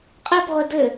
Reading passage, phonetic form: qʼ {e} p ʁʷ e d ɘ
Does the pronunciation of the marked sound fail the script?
no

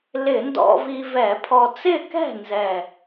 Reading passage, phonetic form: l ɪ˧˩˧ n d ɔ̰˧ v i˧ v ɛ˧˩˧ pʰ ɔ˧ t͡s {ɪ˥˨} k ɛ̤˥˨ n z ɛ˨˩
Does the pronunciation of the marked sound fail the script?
no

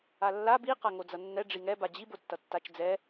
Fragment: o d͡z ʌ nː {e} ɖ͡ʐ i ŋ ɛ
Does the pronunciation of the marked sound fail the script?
yes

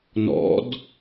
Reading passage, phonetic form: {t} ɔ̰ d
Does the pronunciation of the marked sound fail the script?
yes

